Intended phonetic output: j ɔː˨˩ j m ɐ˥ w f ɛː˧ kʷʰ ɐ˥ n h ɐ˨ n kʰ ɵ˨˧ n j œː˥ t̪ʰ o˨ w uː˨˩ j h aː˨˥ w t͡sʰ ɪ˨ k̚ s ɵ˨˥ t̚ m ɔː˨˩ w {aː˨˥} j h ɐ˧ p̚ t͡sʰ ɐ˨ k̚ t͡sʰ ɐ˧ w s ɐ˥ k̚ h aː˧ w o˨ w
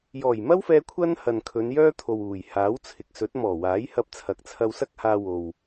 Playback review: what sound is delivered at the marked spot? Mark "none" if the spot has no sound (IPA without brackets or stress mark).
aː˨˥